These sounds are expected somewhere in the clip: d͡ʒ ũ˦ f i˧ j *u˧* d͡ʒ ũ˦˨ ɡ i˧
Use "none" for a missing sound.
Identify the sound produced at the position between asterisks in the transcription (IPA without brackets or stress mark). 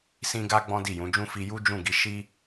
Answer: u˦